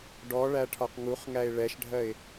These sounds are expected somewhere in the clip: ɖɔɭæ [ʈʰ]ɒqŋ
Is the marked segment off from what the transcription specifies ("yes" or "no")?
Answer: no